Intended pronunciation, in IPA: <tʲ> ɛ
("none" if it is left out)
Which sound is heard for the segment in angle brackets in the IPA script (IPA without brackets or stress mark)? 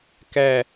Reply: k